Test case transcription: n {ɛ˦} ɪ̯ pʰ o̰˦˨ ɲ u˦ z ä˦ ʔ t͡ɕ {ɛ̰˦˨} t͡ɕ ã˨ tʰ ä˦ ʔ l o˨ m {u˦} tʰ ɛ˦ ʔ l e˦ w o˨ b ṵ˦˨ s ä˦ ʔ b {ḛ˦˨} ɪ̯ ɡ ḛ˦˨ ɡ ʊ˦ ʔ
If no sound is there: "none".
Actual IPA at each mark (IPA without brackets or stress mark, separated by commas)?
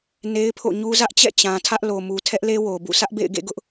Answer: e˦, ɛ̰˦˨, u˨, ḛ˦˨